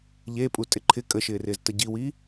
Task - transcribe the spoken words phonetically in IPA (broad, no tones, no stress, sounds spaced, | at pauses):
ʎ e pʼ u tʼ ɪ ǃʰ ɪ kʼ ə ʃ ɪː r ɪː z t ə ɟ i w iː